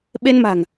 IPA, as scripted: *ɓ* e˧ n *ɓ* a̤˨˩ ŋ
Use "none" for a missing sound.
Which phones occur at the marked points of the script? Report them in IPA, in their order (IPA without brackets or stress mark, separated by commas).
ɓ, m